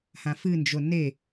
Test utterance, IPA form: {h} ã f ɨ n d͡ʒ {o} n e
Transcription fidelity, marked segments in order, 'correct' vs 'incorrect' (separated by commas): correct, correct